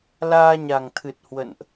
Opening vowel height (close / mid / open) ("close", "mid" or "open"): open